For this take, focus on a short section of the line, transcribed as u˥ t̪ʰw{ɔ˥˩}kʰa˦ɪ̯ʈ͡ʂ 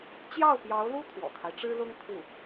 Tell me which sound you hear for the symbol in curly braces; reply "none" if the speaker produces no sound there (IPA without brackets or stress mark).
ɔ̰˨˩